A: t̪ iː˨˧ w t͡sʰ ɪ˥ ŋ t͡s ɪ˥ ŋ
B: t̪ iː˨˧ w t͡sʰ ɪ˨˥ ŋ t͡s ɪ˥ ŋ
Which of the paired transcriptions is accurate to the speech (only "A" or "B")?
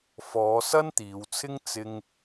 A